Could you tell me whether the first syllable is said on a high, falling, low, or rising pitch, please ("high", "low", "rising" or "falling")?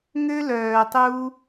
high